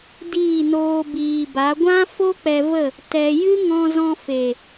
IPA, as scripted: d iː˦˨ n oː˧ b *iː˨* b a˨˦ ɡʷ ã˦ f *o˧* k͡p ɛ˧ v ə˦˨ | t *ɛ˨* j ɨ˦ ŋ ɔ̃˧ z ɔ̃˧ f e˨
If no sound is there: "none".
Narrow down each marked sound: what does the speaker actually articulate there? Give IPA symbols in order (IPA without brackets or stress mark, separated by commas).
iː˨, o˦, ɛ˧